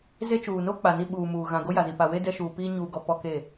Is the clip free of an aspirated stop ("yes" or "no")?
yes